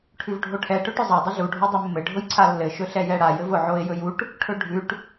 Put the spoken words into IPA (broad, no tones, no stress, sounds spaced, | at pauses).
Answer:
ʈʰ ʉ v ɖʱ o ʈʰ ɛ ʈ ɵ ʈ ʊ zˤ a dˤ ʊ ɮ u ɖʱ o dˤ ɘ mː ɘ ɖʱ ʊ j ǀʰ a lː ɘ ʃ ɵ ɬ ɛ j ɛ ɽ a j ɘ v ʊ ʕ o ɪ̯ j ɵ j u ʈ | ʈʰ ɵ ɖʱ ʉ ʈ